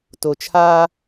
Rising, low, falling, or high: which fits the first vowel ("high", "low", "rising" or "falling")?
low